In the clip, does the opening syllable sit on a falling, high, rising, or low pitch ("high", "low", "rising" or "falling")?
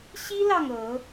high